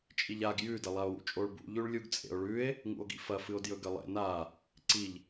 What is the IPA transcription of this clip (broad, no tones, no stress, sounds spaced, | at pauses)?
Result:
t͡ʃʼ i ʎ a ɡ j ʉ d ɐ lˠ a o̯ w ṵ t͡ʃʼ o ɭ b ṵ ʎ ʉ ɭ lʲ u ɡ t͡sʼ ḛ o̯ ɭ ʉ e̯ | ŋ ṵ o̯ ɡ ḭ f ɐ f ɨ o̯ d j ɵ ɡ ɐ lˠ ḛ n a | ǀ i ʎ